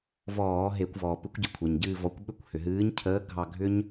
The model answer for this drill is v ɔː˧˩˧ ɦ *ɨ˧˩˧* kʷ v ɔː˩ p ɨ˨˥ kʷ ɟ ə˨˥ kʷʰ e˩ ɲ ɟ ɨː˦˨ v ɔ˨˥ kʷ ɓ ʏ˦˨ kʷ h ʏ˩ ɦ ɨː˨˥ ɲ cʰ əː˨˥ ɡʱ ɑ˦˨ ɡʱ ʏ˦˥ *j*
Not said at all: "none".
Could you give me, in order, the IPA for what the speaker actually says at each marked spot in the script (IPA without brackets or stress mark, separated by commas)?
e˧˩˧, ɲ